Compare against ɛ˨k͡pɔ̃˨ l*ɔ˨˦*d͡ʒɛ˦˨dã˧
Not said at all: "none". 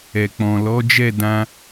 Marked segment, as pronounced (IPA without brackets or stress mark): ɔ˨˦